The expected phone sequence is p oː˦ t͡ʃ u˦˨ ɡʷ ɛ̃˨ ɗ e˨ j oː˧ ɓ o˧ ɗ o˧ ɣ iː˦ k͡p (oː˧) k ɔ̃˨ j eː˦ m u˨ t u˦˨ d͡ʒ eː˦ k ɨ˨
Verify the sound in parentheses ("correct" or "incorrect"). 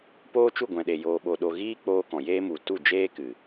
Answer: incorrect